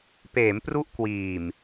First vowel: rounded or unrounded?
unrounded